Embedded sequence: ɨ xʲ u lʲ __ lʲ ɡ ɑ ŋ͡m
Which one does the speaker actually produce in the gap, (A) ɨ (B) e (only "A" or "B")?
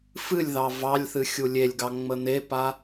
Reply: B